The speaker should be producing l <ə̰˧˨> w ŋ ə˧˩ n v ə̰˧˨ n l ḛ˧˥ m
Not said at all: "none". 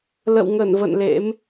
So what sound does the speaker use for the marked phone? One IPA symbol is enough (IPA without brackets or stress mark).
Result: ə̰˧˨